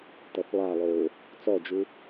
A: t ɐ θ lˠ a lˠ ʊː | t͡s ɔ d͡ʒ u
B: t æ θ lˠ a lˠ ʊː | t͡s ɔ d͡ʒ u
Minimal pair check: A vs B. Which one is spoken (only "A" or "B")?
A